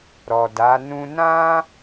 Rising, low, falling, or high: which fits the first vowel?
low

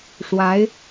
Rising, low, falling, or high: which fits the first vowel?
rising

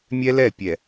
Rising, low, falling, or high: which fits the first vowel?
high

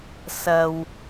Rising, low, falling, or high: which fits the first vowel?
low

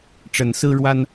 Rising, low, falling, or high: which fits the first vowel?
rising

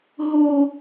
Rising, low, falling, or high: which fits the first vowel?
high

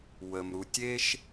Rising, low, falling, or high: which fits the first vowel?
low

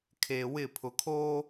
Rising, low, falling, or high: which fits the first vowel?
low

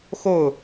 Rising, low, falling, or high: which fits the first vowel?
falling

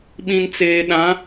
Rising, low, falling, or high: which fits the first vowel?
low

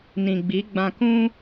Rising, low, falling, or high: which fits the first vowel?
low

